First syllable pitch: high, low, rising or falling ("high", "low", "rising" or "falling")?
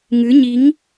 rising